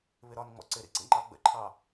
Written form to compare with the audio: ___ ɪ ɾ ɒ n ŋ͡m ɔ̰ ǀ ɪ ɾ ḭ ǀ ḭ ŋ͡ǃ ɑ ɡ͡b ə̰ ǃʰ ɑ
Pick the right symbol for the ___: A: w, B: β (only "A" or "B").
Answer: B